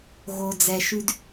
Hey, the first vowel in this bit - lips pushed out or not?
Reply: yes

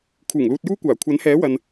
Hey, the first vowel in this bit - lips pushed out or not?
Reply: yes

